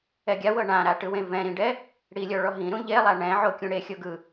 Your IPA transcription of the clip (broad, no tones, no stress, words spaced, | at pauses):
ɛɡʲawɤ ɳãɾaʈɯwẽ vɛ̃ɾĩɖɛ | ɽilʲɔɭɔ ɦĩɾũ ʎelˠa ɳɛ̃ ʕokʲũɽe xʲoɡɯ